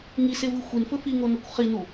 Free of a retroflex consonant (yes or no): yes